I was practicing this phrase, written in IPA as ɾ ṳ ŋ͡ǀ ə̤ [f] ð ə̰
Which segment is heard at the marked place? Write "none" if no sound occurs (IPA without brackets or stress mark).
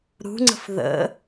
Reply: f